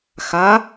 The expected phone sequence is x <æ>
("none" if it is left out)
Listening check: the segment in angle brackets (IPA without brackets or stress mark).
a